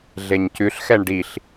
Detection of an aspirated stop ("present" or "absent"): absent